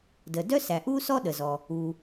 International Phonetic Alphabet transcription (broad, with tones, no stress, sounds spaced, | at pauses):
d ə˩ d œ˥ s æ˩ ʔ u˥ s ɔ˥ ɗ ə˩ z ɔ˩ | u˩